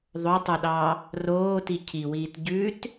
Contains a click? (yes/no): no